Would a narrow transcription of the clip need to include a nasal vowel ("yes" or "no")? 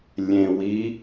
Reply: yes